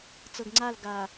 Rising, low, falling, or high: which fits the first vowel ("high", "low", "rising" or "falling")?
low